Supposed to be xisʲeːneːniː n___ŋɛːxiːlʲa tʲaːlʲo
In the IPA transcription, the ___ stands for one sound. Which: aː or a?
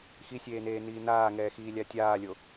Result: aː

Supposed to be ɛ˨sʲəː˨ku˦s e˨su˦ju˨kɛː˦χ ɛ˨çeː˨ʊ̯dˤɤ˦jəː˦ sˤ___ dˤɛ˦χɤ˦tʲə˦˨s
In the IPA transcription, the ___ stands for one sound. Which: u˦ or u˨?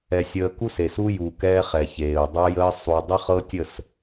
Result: u˨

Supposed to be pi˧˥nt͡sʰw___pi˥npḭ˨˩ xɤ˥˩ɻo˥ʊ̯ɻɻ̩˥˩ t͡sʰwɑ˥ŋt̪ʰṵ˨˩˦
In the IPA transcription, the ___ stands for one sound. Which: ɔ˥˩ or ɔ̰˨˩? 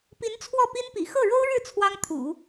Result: ɔ˥˩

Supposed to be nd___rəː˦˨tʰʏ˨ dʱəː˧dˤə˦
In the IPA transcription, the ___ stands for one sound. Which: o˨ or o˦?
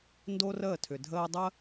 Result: o˦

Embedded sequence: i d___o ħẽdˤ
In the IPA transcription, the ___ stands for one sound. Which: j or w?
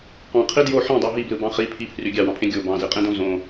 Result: j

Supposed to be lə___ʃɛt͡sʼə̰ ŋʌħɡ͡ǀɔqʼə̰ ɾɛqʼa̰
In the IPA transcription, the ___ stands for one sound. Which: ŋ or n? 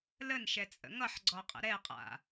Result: n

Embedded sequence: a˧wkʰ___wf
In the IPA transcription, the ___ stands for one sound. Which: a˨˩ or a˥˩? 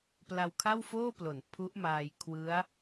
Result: a˥˩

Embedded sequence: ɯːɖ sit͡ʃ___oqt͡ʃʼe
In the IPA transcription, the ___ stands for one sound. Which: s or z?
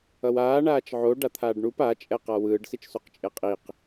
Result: s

